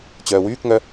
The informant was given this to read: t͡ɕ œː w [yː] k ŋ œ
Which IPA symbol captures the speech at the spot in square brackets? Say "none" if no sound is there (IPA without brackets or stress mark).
yː